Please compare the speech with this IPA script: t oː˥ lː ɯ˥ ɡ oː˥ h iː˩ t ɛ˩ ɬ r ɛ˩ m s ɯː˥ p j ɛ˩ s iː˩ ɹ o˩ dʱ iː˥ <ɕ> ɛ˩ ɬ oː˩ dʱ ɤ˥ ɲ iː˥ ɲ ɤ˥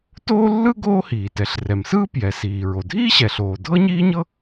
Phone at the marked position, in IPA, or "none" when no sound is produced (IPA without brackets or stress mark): ɕ